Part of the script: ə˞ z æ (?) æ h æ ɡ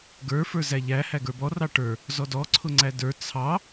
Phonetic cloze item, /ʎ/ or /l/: ʎ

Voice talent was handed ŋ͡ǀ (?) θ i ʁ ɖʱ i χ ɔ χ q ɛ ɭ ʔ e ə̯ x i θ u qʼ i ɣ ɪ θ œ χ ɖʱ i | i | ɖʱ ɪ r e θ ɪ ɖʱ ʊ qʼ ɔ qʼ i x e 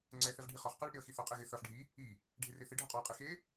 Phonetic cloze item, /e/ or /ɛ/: ɛ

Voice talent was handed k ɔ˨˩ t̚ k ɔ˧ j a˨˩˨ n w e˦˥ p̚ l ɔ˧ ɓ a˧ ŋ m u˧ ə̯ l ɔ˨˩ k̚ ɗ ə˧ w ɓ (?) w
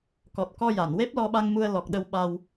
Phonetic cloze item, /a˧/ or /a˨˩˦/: a˧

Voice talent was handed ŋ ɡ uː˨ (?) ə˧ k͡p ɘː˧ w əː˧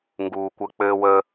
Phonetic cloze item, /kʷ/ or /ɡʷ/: kʷ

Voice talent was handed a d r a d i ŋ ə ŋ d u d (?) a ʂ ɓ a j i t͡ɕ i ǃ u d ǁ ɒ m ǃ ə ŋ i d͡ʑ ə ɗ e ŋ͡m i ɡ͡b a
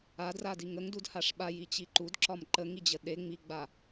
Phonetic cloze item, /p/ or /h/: h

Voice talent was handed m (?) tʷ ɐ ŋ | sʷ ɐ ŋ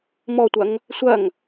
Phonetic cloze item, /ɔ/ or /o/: ɔ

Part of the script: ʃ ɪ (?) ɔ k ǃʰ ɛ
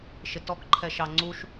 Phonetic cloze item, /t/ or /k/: t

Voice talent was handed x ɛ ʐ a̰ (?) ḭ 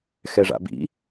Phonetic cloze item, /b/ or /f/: b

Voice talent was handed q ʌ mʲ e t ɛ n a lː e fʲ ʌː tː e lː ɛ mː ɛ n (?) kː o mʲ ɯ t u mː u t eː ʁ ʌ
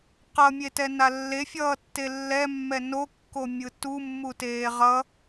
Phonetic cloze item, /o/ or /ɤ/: o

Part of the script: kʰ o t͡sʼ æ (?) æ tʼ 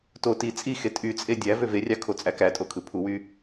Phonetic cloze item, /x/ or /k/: k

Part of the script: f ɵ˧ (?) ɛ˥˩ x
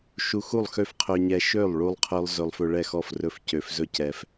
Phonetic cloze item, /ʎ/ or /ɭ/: ɭ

